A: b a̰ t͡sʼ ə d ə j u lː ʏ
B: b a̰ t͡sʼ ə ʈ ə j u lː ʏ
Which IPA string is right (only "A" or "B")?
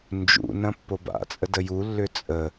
A